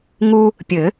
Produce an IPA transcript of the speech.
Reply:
ŋu˥ | pʲɘ˨˩˦

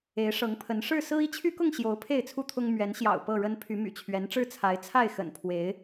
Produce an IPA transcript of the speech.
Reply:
e˨˦ɪ̯ʂɤ˨˦ŋpʰə˨˦n ʂɻ̩˥˨ sɹ̩˦i˦t͡ɕʰy˦kʊ˥˨ŋ ɕjo˨˦ʊ̯ pʰe˥˨ɪ̯t͡sʰu˥˨t̪ʰʊ˦ŋ mɥɛ˨˦nɕjɑ̰˨˩ʊ̯ pɤ˥˨ɻə˦n pʰy˨˦my̰˨˩t͡ɕʰɥɛ˨˦nʈ͡ʂɻ̩˦ t͡sʰa˨˦ɪ̯t͡sʰa˥˨ɪ̯xə̰˨˩npʰwe˨˦ɪ̯

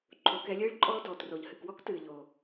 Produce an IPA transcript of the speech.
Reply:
ǃʰo˩˧kɛ˩˧lʲɨː˧˥ɭǃʼɔː˧ dɔː˩tro˩ʎhɨ˩kwɔ˥k tɨː˩ʎoː˩

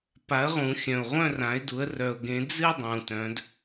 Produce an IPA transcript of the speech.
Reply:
pa˨˦ə̯ʁũ˨˩˦ xʲœ̃˨ʊ̯ʁʷœ̃˥˧rã˨˦ɪ̯du˨˦ə̯ rœ˨ʊ̯ɡẽ˨˦d͡zɨ˥˧ dˤũ˨tœ̃˨˦d

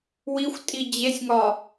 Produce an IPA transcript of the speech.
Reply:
wixʷtʼi d͡ʑesʲŋɒ

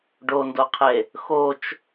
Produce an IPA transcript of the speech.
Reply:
ɖondoqʰe | xot͡ʃ

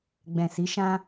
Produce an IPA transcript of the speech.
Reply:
ɡ͡bɛ̃˨si˨˦ ʃã˦

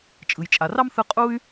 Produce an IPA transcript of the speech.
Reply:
t͡ʃʼɯ˩jt͡ʃʼa˩rɑ˥m θɯ˦ qʼu˦y̯

